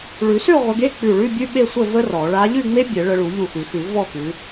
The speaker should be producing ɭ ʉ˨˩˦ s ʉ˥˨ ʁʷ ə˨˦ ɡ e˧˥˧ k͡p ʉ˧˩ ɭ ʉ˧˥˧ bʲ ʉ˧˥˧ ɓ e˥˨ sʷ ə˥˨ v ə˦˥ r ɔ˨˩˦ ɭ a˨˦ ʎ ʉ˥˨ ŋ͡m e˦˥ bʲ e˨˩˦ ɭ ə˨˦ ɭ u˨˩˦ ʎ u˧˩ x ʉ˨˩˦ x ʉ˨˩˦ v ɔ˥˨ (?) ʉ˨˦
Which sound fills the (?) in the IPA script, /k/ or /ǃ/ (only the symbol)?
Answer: k